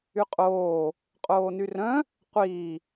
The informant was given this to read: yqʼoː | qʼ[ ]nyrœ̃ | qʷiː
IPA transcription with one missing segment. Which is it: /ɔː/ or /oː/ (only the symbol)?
oː